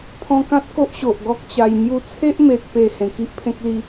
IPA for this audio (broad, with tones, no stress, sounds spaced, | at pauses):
pʰ ɔ̃˧ k ã˦ t̚ k o˦ ʔ ɕ o˨ ʔ ɡ ɔ˦ k̚ t͡ɕ a˧ j m j u˧ t͡sʰ e˦ ʔ m e˨ t̚ p e˨˩ h ẽ˨˩ k i˦ ʔ pʰ ẽ˦ k̚ l i˧